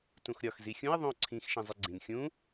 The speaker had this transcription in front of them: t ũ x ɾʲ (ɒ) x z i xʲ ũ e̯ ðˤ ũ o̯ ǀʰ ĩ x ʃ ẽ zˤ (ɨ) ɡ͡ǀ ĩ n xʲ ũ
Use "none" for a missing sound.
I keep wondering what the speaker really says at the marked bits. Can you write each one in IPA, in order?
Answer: ɒ, e

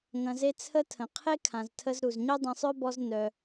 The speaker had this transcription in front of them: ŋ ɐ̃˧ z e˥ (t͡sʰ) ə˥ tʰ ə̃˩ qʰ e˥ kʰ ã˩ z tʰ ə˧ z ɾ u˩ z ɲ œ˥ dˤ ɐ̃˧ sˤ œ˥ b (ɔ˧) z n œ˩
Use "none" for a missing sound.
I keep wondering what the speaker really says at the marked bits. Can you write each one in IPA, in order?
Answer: t͡sʰ, ɔ˧

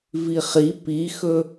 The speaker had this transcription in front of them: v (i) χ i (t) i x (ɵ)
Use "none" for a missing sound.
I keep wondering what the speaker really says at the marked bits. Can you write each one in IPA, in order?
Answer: i, p, ɵ

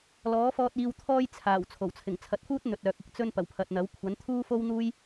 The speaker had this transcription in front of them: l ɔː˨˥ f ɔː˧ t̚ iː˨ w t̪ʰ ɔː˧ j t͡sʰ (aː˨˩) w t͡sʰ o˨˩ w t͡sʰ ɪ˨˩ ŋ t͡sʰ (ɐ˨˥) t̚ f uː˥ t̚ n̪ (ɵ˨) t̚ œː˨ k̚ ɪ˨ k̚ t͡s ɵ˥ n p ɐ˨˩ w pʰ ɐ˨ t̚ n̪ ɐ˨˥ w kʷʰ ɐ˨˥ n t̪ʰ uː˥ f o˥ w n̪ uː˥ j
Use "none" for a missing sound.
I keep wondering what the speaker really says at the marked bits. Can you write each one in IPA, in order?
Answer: aː˨˩, ɐ˨˥, ɵ˨

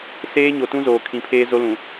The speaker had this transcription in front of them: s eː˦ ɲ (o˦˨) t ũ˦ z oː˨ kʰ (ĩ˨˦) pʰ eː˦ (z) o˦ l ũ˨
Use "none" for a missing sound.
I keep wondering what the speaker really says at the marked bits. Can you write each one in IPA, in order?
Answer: o˨, ĩ˨˦, z

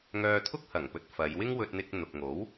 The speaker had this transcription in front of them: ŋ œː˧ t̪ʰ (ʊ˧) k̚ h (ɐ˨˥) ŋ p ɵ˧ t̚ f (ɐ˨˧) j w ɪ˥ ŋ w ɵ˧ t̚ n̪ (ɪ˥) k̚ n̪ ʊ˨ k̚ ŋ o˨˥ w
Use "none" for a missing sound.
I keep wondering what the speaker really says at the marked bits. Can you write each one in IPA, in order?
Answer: ʊ˥, ɐ˨˩, ɐ˨˧, ɪ˧

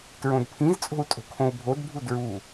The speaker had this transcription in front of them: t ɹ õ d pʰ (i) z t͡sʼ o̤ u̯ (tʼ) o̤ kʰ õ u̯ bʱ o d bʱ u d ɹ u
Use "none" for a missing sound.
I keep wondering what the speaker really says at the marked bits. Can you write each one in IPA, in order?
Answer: ĩ, tʼ

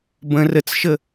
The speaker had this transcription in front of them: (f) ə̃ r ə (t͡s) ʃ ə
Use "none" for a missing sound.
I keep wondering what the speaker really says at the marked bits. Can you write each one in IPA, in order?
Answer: b, t͡s

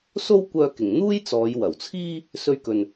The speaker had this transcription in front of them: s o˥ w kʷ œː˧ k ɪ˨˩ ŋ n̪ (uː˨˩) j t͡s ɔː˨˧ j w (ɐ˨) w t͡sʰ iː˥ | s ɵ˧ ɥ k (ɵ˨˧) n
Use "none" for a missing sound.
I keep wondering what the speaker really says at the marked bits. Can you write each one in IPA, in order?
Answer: uː˥, ɐ˨˩, ɵ˨

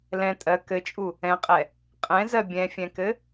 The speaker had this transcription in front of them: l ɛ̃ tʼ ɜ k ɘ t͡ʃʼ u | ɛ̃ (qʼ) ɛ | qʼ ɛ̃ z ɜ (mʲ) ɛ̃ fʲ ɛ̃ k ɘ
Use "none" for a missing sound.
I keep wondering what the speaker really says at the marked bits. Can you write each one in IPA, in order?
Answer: qʼ, bʲ

